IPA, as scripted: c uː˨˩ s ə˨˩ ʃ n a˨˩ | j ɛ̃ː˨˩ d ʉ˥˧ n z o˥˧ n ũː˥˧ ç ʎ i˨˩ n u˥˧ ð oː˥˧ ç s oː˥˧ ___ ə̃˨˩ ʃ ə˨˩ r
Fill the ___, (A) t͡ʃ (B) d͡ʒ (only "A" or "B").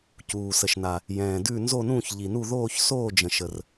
B